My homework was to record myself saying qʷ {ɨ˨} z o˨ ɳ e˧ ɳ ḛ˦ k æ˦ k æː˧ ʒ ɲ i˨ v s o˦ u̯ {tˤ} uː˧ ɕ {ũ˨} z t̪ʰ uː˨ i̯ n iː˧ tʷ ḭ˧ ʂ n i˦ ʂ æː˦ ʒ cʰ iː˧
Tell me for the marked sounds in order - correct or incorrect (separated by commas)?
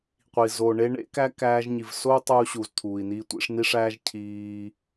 incorrect, correct, incorrect